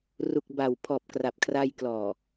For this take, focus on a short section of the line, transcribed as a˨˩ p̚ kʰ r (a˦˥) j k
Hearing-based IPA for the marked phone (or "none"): a˧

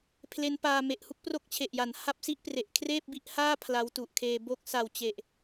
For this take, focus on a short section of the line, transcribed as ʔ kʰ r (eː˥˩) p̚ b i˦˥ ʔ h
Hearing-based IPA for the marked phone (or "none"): eː˥˩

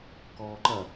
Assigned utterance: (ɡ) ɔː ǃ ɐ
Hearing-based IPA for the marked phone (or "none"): k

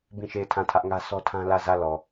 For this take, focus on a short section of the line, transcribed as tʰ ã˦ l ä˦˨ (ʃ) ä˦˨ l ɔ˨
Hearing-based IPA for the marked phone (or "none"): z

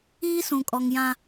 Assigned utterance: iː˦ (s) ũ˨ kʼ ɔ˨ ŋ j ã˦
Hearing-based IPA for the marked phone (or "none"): s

